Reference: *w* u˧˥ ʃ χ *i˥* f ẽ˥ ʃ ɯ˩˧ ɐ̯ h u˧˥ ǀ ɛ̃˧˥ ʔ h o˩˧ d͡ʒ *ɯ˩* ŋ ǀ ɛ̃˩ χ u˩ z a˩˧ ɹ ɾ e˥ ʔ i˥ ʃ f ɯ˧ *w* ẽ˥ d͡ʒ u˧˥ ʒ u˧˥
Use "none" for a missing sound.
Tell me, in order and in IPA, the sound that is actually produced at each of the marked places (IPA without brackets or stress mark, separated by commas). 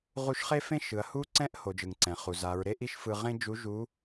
ʁ, e˥, ɯ˩, ʁ